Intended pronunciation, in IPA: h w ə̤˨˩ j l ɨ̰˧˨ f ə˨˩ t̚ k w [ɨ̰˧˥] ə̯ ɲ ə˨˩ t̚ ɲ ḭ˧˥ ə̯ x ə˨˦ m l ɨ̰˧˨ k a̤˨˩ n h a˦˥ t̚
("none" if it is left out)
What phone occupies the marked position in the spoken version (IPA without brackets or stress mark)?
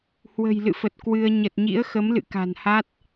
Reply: ɨ˧